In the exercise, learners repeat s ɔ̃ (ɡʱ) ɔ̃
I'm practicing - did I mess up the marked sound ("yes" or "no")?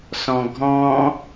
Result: no